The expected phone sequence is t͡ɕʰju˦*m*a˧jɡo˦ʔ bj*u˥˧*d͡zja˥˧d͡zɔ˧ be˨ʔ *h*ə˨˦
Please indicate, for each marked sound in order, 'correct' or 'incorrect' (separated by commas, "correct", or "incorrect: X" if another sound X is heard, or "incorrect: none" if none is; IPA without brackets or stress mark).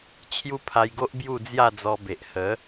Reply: incorrect: pʰ, correct, correct